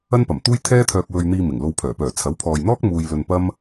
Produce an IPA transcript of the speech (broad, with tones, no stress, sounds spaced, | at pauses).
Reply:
ɐ˥ n p ɐ˨˩ m t̪ uː˥ j t̪ʰ ɛː˥ t̪ʰ œː˧ k̚ w ɵ˧ ɥ n̪ iː˧ m ɪ˨˩ ŋ l o˧ w pʰ œː˨˩ p œː˨˩ t͡sʰ ɐ˨˥ w pʰ ɔː˨ j n̪ ɔː˥ k̚ m uː˧ j l ɵ˧ n p ɐ˥ m